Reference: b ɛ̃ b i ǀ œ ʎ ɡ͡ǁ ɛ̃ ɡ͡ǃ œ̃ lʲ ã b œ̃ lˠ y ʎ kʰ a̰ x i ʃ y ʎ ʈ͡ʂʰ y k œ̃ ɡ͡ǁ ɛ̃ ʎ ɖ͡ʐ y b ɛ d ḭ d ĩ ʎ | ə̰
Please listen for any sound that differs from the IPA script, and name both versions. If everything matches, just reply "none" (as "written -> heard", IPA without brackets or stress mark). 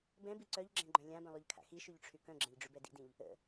none